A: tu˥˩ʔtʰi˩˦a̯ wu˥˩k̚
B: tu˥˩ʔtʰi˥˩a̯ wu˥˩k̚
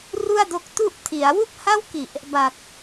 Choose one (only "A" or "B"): A